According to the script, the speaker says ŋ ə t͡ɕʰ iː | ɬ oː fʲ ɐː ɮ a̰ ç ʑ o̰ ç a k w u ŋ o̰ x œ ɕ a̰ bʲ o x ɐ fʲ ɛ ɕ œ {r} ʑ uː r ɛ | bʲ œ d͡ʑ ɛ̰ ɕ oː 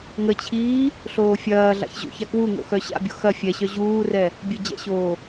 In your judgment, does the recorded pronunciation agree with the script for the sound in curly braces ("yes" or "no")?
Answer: no